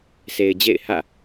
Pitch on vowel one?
low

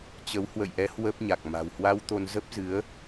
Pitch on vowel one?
rising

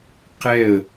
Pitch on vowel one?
falling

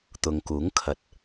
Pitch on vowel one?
low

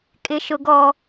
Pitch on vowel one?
high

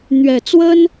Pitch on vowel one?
low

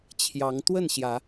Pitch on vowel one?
rising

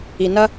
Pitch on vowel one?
low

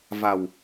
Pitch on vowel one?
low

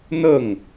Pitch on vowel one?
falling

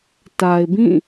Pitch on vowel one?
low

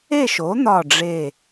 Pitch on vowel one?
falling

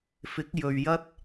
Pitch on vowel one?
rising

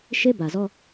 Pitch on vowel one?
high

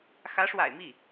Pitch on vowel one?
rising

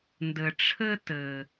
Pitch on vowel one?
low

